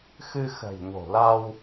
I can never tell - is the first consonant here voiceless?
yes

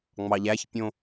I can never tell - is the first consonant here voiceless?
no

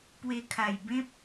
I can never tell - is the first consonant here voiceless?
yes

